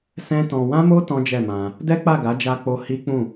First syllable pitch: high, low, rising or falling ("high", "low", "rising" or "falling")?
high